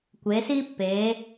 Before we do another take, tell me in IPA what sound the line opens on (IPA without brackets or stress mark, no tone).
kʷ